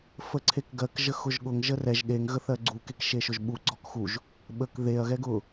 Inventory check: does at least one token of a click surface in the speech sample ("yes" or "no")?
yes